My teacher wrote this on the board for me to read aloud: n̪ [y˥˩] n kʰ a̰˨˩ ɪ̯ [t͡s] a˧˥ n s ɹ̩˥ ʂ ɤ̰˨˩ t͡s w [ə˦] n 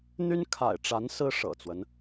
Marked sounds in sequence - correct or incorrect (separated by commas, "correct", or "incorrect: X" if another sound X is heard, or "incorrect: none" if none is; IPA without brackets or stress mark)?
incorrect: y˥, incorrect: ʈ͡ʂ, correct